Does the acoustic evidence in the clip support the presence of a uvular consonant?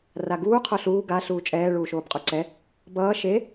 yes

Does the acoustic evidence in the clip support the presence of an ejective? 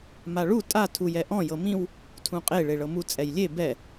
yes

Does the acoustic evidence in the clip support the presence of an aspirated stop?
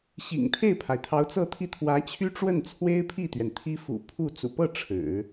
yes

